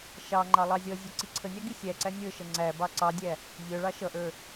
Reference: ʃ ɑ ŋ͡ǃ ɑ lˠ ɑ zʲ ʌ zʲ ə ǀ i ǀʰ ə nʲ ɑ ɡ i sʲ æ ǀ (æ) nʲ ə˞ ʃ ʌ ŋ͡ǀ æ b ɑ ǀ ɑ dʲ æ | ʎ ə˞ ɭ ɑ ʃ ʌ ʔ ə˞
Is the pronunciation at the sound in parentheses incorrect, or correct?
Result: correct